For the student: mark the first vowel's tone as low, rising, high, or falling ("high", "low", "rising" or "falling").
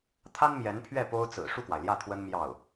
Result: high